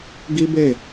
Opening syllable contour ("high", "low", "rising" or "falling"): high